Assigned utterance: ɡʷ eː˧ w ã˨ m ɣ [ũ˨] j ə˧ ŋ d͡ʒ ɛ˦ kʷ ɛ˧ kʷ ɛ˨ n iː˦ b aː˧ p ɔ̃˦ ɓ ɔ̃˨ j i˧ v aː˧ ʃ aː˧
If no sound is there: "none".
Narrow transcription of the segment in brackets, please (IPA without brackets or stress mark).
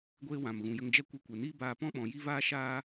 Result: ũ˨